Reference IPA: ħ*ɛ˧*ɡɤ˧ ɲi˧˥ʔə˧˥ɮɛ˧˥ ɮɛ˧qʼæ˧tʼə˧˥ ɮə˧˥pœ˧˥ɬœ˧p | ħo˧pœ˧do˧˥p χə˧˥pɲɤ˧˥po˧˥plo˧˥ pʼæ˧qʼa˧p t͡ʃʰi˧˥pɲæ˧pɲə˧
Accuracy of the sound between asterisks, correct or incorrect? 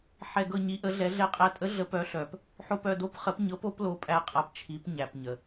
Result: correct